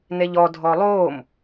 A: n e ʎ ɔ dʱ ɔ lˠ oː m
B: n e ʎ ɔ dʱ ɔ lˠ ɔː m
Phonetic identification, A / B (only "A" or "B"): A